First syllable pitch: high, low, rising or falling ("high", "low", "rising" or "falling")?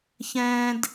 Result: high